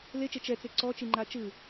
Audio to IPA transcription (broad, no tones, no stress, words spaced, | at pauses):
let͡ʃe t͡ʃɛt͡se ǀɔt͡ʃiŋ͡ǃa t͡ʃɯ